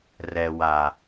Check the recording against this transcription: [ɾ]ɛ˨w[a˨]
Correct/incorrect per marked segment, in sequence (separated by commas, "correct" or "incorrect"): incorrect, correct